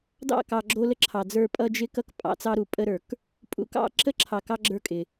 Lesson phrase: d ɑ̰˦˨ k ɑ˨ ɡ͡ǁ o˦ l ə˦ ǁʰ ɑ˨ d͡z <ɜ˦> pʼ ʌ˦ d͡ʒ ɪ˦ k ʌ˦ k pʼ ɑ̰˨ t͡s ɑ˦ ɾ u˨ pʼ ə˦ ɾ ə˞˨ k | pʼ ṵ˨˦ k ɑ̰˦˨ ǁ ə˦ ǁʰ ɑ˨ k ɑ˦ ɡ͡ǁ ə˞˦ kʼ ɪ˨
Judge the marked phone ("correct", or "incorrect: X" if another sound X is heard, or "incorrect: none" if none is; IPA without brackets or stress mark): incorrect: ə˞˦